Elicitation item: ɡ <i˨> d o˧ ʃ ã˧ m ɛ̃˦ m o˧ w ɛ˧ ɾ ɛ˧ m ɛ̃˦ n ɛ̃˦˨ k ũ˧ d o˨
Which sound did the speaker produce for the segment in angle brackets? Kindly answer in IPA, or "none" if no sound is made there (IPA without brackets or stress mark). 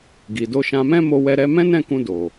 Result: i˨